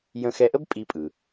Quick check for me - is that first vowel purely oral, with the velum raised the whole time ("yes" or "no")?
no